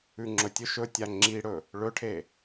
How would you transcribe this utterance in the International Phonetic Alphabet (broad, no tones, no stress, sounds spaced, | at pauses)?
ʉ ŋ͡ǁ ɵ tʲ ɵ ʃ ɵ tʲ a ŋ͡ǁ i ɽ ɵ | ɭ ɵ ʈʰ e